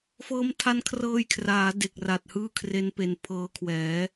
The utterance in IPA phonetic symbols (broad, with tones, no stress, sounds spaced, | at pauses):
f ɤː˦˥ m tʰ a˦˥ n kʰ r ɤː˧ j kʰ r aː˩˦ d e˨˩ k̚ r a˨˩ t̚ h ɯː˥˩ kʰ r e˦˥ n p e˨˩ n pʰ ɤː˧ kʰ w ɛː˩˦